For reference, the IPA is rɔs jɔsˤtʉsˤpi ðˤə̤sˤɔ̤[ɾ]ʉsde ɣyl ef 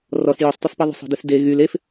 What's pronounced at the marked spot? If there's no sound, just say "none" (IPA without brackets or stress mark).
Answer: d